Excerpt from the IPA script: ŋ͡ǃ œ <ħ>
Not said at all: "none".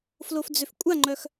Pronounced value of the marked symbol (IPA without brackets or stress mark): x